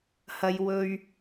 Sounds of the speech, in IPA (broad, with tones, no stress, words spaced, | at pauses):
hɐ˨j wɵ˨ɥ